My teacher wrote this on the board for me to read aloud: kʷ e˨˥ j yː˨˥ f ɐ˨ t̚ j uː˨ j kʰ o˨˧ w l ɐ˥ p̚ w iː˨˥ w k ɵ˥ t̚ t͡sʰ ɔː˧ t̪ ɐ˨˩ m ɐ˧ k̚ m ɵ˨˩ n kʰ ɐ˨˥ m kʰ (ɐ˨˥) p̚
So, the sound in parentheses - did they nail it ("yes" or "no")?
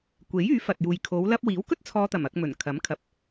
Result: no